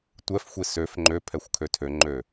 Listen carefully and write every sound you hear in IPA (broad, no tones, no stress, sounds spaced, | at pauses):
tʷ ɛ f xʷ i s ø f ŋ͡ǃ ø pʰ ɛ xʷ kʰ ø tʰ ø ŋ͡ǃ ø